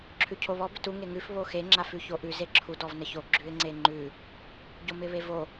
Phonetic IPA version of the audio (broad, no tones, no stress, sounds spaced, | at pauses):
ǁʰ ʉ cʰ o β ɔ b ɪ t u ŋ e ŋ ʉ f β o x e ŋ͡ǁ a f ʉ ç o ʔ ʉ z e ǁʰ u d ɔ v n ə ç o ɡ͡ǁ ʉ ɪ̯ ŋ͡ǀ e ŋ͡ǃ ʉ | ɟ o m ɪ β e v o